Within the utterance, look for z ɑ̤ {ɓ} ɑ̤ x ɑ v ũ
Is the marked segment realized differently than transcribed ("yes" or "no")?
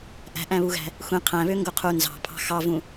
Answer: yes